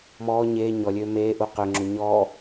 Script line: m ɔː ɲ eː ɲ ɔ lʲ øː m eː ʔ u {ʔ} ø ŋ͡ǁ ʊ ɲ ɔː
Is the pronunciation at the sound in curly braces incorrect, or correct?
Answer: incorrect